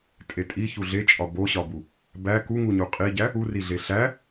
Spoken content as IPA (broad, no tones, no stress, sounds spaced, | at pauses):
tʼ e tʼ i ç u ɮ e t͡ʃʼ ɒ b o ɕ ɒ b u | b æ k u ŋ u ɲ u qʼ i ɟ æ | u r i ɮ e ɬ æ